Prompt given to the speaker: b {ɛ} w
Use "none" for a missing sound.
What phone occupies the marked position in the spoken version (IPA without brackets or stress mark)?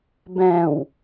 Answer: ɛ̃